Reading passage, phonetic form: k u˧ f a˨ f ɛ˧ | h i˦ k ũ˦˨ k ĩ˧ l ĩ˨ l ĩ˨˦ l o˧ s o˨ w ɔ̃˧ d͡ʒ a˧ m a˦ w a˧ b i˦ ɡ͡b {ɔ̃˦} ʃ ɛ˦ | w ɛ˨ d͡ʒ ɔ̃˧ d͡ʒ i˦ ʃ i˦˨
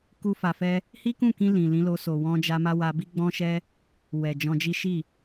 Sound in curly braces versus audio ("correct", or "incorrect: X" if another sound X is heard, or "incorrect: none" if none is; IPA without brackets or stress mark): correct